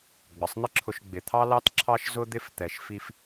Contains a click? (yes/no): yes